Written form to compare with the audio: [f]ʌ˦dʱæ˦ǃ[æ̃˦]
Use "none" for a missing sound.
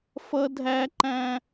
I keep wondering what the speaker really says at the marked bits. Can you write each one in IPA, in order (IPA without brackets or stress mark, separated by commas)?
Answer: f, æ̃˦